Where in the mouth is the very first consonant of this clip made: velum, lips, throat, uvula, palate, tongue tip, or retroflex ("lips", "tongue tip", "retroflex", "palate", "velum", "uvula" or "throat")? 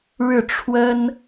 retroflex